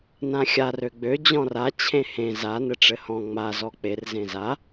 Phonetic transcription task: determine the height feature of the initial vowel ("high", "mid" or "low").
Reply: low